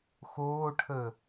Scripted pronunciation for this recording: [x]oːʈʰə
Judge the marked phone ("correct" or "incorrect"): correct